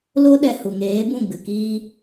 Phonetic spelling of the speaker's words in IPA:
lo˦ɗɛ˧ hu˨ŋeː˨˦bũ˦˨ ɡ͡bɨ˨kiː˧

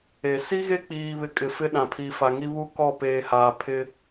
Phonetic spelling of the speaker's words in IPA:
e˨ si˦ɣe˦k͡piː˨βɪ˨ kʼɪ˨fɪ˦ ɗã˨pʰiː˨fa˨ŋi˦ βu˦kɔ˦˨peː˨haː˨ pʰɪ˦

